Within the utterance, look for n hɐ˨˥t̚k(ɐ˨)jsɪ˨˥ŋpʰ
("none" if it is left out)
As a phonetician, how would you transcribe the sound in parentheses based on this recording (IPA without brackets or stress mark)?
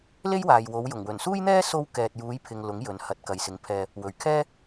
ɐ˨